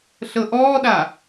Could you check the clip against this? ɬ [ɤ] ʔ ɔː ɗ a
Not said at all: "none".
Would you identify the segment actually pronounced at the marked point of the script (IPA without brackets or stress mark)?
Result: ɤ